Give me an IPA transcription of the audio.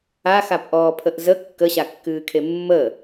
a x a p ʔ ɔː pʰ ə ʔ z ə kː ə ɕ a kː ɨː kʰ e mː ə

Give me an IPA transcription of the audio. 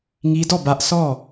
ŋ i˦ d ɔ˦˨ b ä˦ ʔ sʰ ɔ˦˨

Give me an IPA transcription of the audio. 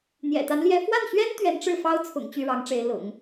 n̪ j ɛ̰˨˩ t̪ a˧˥ n l j ɛ˧˥ f w a˥˩ n ɕ ɥ ɛ˥ n t̪ ɥ ɛ˧˥ n ʈ͡ʂ ɻ̩˥˩ f ɑ˥ ʊ̯ t͡sʰ ʊ̰˨˩ ŋ t͡ɕ y˥˩ ɻ ɑ˧˥ ŋ ʈ͡ʂ e˧˥ ɪ̯ l ʊ̰˨˩˦ ŋ

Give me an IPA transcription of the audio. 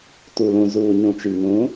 t u˨ l ũ˨ z uː˨ ɲ ũ˨ t͡ʃ i˨ ŋ ũ˨˦

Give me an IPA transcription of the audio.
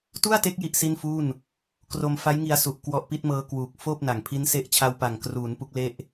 t u˥˩ a̯ t e˦˥ k̚ j i˥˩ ʔ s i˥˩ n f uː˥˩ n | k r o˧ m f a˦˥ j ŋ i˧ a̯ s u˨˩ ʔ k w ɔ˦˥ ʔ p i˦˥ t̚ m ɤː˦˥ k w uː˨˩ k̚ f oː˥˩ p̚ n a˨˩ ŋ pʰ i˦˥ n s e˦˥ ʔ t͡ɕʰ a˧ w p a˨˩ ŋ k r uː˩˦ n p u˦˥ k̚ l e˥˩ ʔ

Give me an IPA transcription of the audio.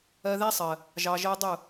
ɜ˧ ð æ˦ sˤ ɜ˨ | ʒ ɑ˨ ʒ ɜ˧ dˤ ʊ˦˨

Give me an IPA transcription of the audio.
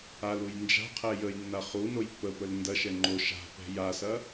a l u j n d͡ʒ a̤ qʰ ɛ j ə j nː a χ u n o j pː ə p ə l n d ɐ ʃ ɛ ŋ͡ǃ o ʃ a̤ p ɛ̤ j a s ɐ

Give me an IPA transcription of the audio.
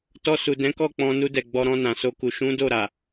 t ɔ˧ s u˨ d ɛ̃˨˦ k ɔ˦˨ k͡p ɔ̃˧ n u˧ d ɛ˨ ɡ͡b ɔ˧ ɾ ɔ̃˧ n ã˨ s o˧ k u˨ ʃ ũ˨˦ d o˦˨ ɾ a˨

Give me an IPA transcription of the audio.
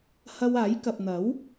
h ɐ˧ w aː˨˥ j k ɐ˨ p̚ n̪ ɐ˨˥ w

